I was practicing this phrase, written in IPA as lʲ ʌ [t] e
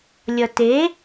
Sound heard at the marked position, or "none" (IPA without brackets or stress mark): t